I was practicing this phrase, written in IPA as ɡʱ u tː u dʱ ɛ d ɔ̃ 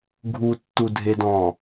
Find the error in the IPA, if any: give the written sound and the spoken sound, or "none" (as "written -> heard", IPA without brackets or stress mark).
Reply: ɛ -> e